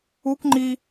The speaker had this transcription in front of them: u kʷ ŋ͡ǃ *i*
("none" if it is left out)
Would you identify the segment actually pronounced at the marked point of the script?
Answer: i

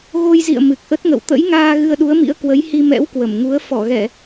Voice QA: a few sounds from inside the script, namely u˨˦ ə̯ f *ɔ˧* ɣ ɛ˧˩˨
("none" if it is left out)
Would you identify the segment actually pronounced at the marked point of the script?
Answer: ɔ˧˩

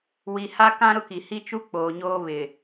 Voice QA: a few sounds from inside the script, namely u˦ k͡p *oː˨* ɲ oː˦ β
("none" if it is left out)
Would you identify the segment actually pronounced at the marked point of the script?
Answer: oː˨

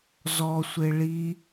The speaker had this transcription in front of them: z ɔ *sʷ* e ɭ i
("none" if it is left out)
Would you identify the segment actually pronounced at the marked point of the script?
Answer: sʷ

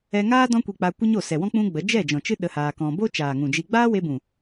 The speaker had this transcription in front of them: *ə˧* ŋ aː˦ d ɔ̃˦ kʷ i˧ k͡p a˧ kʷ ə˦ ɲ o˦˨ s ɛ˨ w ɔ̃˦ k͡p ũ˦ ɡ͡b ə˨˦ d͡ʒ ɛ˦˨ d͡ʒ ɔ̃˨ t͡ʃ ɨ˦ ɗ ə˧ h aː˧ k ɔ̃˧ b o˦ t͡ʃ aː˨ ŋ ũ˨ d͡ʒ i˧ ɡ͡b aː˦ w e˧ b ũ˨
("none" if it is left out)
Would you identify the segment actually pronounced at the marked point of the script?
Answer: ɛ˧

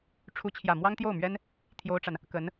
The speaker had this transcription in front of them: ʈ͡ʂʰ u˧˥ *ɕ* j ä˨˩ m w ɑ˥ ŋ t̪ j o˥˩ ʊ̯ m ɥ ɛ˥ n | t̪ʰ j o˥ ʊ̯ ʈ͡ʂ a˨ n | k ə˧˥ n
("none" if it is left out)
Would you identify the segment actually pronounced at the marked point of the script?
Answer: t͡ɕʰ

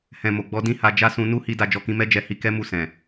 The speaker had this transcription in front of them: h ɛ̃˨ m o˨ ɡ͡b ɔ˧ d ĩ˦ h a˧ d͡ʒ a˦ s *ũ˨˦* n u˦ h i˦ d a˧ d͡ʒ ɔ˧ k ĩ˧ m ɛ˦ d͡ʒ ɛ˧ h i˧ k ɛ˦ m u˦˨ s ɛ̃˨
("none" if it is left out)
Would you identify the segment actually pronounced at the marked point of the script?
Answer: ũ˧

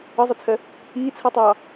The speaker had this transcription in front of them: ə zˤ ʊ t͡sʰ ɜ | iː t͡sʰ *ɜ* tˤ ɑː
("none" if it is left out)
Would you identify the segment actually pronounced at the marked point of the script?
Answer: ɜ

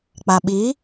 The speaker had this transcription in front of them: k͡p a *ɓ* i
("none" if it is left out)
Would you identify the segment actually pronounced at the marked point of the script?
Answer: ɓ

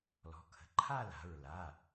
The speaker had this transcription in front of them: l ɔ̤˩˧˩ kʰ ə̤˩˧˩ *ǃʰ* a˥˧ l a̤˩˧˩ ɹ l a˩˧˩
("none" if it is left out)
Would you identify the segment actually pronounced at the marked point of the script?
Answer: ǃʰ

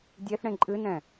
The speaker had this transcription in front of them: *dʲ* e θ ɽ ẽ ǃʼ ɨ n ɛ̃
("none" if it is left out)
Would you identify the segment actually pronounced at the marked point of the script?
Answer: dʲ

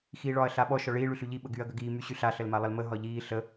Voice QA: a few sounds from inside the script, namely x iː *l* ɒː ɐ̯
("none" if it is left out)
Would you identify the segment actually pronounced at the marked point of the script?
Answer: ɭ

